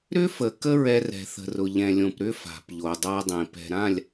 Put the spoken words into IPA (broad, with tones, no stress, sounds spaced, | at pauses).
ɾ ʏ˦ f ə˨ k ə˦ ɹ ɛ˦ r ɛ̤˨ θ ə̤˨ r ʊ˨ ʎ ɛ̃˨ lʲ õ˨ p ɾ ʏ˦ f a̤˨ p ʎ o˨ dˤ a˦ dˤ ẽ˨ p ɛ̤˨ ɾ ã˦˨ lʲ